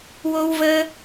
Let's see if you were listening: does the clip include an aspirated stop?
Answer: no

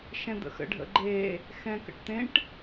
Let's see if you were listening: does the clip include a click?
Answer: yes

